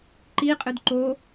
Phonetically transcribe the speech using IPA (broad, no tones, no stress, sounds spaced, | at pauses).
ǃ i qʼ ɨ d ǃ o